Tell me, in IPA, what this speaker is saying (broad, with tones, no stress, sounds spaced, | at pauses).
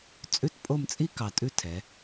t͡sʼ ʉ˥˧ t pʼ o˥˧ m t͡sʼ i˥ k ɑ˧ tʼ ʉ˥ tʰ ɛ˩˧